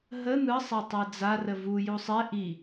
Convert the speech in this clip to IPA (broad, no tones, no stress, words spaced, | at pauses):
ɦə n̪ɯ sˤatˤɛd͡za rəvu jusˤɛ ʔi